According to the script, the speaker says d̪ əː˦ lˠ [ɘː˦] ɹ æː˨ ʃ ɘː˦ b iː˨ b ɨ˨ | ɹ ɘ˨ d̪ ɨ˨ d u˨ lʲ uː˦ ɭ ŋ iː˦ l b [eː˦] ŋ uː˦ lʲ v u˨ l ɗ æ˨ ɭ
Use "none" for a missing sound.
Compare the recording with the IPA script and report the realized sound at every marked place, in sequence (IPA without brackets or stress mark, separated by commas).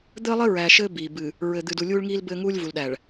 ɘ˦, ɘː˦